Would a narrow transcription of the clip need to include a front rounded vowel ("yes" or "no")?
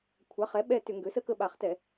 yes